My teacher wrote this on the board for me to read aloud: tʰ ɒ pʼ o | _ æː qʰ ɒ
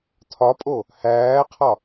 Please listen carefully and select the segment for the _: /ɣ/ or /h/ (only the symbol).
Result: h